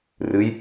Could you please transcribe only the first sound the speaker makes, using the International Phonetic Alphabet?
r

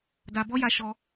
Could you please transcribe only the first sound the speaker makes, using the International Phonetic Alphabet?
d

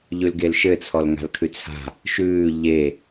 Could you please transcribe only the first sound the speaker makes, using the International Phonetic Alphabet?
ʎ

